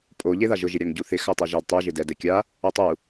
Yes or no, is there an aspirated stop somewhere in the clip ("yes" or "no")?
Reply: no